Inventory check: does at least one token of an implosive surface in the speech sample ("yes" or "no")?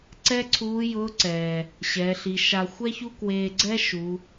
no